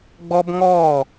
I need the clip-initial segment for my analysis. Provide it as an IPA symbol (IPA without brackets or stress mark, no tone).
ɡ͡b